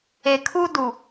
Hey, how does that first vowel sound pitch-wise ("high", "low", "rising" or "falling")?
low